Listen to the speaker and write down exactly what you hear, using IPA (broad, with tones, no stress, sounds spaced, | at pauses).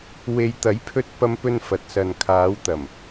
w e˨ j t̪ ɐ˨˥ j pʰ ɵ˧ t̚ p ɐ˧ m p ɵ˧ n f ɐ˨˥ t̚ s ɐ˨ n kʰ aː˨˧ w t̪ ɐ˨˩ m